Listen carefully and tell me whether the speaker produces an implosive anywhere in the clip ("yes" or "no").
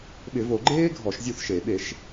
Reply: yes